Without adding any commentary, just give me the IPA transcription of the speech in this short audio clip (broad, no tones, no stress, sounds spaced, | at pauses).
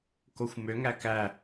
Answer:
k o xʷ m ø ŋ æ k æ